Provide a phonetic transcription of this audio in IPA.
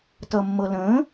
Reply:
t ʌ mː ɤ l ə̃ː

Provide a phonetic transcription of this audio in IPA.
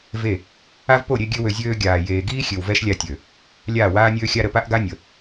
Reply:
v e˦˨ | a˦ v p o˦˨ ɾʲ e˧ ɡʲ ø˦ w ø˧ zʲ øː˧ ɡʲ aː˨ j eː˨ ɡ iː˦ xʲ ø˨ w v ɛ˦ ʃ lʲ a˧ tʲ ø˨ | lʲ aː˦˨ w aː˦ nʲ øː˦ xʲ a˦ ɾ ə˨ p a˦ ʔ ɡ a˦ nʲ ə˨

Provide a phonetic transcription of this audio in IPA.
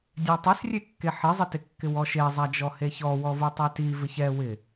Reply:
dʲ a tˤ ɪ s rʲ e kː e ħ ɪ zˤ ɪ t ɪ kː ɪ w ɔ ʃ e zˤ a d͡ʒ ɔ h e ç ɔ w ɔ v u tˤ ɛ t i v ɪ ç ɛ w ɪ

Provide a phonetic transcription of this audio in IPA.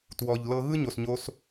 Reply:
t w ɔ˨ ʎ l ɤ˧ ɣ ɯ˦ ɲ o˨ s ɲ o˧ s

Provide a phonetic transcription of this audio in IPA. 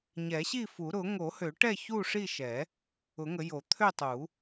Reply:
ɲ ɛ˨˩˦ ɕ i˥˨ f u˨˩˦ ɾ ʊ˨˩˦ ŋ o˨˩˦ h ø˨˩˦ ʈ ɛ˥˨ ç u˥˨ ʂ i˥˨ ʃ ɛ˨˩˦ | ʊ˨˩˦ ŋ ə˨˩˦ j o˨˩˦ t̪ʰ ø˥˨ tˤ u˨˩˦

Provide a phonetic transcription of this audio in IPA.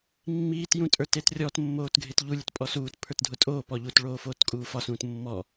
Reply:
mː iː t j ũ tʼ ə˞ t e t rʲ ɔ t mː oː t ɡʱ e t ʎ u lʲ ə˞ t pʼ ɔ s uː t pʰ ə˞ t dʱ ʊ tʼ oː p ɔ ʎ u t ɭ oː f oː t kʼ uː f ɒ s ũː t mː ɔ

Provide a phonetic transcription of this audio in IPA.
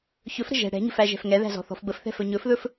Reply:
ç ɵ f ɾ ə̤ ʒ ɛ̤ ɽ ɛ̤ ɲ ə̤ f æ ʒ ɛ̤ f ŋ ɛ ð æ̤ z ɔ̤ θ ɔ̤ f b ə f θ ɛ̤ f ɵ ɲ ɵ f ð ɵ f

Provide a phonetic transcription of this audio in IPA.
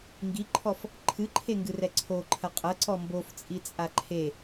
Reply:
ŋ ɡ i ǃʰ ɔ f | ǃʰ ɨ ǃʰ e ŋ ɡ ɨ r ɛ ǀʰ o ǃʰ ɐ qʼ ɐ ǀ ɔ m b o f t͡sʼ i t͡sʼ a ǃʰ e

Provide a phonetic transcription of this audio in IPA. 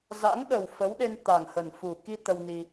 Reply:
z a̰˧˥ ŋ ɗ ə˨˩ w f ə˨˦ w ɗ e˧ n t̪ a˨˩ ŋ h ə˨˩ n f u˨˩ k i˧ t̪ ə˧ w n i˧

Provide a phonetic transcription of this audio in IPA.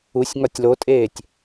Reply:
u sʲ ŋ ɒ tʲ l o tʼ eː tʲ

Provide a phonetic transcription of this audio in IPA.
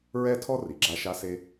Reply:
ɹ ɛ˥ tʰ ɔ˥ r i˩ ɡ͡ǁ a˧ ʃ a˧ s e˧

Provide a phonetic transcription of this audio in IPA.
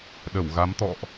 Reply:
ɗ ə˧˩ w ɣ a˨˦ m t̪ ɔ̰˧˨ ʔ

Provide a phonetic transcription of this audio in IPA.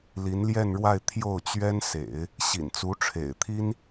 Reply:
l i˧˥ n l j ɛ˥˧ n ɻ w a˥˧ ɪ̯ t̪ʰ j o˥˩ ʊ̯ t͡ɕ ɥ ɛ˥ n s ḛ˨˩˦ ɪ̯ | ɕ ḭ˨˩ n t͡s u˧˥ ʈ͡ʂʰ ḛ˨˩ ɪ̯ t̪ʰ i˥ n

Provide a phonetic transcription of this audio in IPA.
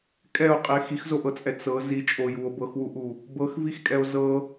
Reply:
kʼ ɛ o̯ qʼ i e̯ x i x z o ʔ ɤ t͡sʼ ɛ t͡s ɤ z i t͡ʃʼ o j u o̯ b ɤ x w u ʔ u | b ɤ x v i x kʼ ɛ o̯ z ɤ

